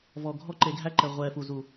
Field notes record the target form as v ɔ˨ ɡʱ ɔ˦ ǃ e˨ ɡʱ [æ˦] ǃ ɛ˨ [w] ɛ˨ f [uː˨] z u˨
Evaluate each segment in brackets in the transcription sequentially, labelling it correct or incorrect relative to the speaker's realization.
correct, incorrect: ʁʷ, incorrect: u˨

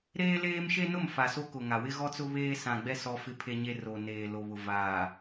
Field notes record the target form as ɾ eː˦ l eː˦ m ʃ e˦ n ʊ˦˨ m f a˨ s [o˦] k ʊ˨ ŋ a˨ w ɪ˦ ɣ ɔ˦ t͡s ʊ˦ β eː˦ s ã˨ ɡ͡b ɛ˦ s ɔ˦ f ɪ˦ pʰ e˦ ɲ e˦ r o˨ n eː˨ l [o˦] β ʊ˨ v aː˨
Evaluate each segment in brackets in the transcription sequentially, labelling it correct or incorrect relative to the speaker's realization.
correct, incorrect: o˨

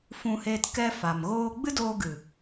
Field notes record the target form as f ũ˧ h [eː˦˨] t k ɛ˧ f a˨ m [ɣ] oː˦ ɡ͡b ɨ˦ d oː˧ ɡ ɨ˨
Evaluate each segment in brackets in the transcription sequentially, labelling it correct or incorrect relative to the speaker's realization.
incorrect: eː˧, correct

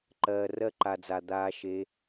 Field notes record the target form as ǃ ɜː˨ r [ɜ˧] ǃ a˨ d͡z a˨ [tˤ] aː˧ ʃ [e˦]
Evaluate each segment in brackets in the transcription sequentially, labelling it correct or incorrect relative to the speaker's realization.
correct, incorrect: d̪, incorrect: e˧

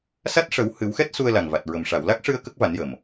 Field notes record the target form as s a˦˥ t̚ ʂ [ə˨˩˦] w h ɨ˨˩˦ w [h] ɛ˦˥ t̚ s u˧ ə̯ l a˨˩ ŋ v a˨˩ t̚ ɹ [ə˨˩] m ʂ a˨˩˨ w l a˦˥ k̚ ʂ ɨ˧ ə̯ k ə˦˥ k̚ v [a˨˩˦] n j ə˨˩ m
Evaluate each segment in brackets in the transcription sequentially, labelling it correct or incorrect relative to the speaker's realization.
correct, incorrect: x, correct, correct

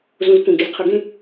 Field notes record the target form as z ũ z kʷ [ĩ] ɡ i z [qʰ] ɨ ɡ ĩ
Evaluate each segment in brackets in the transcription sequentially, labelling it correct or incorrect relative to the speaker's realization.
correct, correct

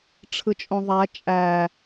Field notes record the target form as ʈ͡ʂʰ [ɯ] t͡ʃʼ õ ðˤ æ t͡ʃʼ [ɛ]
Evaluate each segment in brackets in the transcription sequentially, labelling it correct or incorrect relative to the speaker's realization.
correct, incorrect: æ

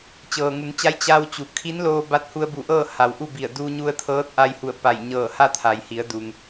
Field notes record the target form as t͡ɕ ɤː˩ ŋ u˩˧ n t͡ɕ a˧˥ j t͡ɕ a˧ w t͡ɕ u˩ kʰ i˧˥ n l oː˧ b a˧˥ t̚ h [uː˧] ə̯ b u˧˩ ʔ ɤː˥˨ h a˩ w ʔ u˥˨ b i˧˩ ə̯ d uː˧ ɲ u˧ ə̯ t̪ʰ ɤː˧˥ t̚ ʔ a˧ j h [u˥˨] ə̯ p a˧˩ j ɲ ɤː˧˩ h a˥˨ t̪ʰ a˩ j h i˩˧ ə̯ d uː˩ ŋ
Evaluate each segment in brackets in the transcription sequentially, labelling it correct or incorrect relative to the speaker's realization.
incorrect: u˧, incorrect: u˧˩

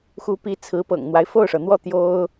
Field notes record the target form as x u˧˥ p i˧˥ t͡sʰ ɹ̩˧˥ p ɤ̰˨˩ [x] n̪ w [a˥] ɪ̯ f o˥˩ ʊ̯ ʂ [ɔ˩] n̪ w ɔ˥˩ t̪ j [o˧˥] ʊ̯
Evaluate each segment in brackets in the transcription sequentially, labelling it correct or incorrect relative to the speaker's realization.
incorrect: ŋ, incorrect: a˦, incorrect: ɤ˩, incorrect: o˥

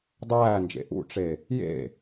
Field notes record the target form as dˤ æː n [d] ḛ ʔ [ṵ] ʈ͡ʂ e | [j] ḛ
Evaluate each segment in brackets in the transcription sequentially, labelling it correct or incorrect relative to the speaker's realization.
incorrect: d͡ʒ, correct, correct

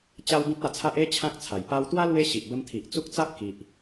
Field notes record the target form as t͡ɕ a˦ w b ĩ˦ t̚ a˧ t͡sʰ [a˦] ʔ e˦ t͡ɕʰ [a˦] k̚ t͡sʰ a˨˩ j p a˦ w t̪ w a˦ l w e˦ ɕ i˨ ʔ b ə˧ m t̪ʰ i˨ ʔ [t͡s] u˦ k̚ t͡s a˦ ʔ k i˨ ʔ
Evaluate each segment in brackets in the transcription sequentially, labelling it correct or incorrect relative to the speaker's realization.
correct, incorrect: ã˦, correct

